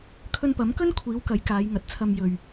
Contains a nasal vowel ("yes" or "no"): no